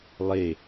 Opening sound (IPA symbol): lˠ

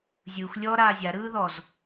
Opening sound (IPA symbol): zʲ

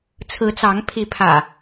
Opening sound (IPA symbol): t͡sʰ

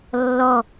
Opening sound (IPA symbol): lː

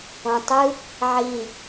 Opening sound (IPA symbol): õ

